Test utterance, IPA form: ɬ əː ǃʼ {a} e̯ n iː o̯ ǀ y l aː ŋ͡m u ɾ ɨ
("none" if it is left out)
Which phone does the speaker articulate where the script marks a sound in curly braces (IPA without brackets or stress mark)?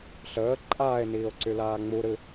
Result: aː